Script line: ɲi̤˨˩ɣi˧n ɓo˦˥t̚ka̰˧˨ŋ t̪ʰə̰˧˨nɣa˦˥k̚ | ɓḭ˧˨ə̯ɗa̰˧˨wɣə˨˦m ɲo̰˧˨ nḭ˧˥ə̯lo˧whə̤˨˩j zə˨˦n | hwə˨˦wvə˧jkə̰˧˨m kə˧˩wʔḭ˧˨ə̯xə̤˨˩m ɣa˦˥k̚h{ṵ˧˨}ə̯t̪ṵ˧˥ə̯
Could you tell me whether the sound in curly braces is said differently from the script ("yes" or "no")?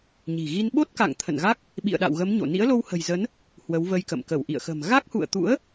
no